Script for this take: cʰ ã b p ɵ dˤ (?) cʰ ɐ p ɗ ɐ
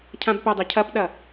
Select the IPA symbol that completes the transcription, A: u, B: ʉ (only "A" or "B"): B